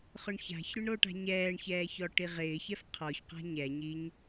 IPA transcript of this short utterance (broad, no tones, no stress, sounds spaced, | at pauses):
χ ʊ ɳ ç a̤ ç ɾ ʊ ɳ ɾ o ʈ a̤ ɲ ɛː ɳ ç ɛː ç ɔ ʈ i ʁ ɪː ç ɛ f qʰ ɔ ç q a̤ ɲ ɛ ɲ i ɲ